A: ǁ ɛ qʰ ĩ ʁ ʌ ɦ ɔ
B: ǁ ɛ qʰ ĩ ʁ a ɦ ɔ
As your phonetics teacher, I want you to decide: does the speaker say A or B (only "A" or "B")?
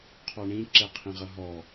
A